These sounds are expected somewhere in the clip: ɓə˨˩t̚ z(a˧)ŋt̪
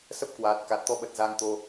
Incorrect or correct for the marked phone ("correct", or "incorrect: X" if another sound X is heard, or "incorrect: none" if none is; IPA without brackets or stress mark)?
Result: correct